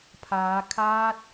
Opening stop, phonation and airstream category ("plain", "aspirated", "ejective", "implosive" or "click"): aspirated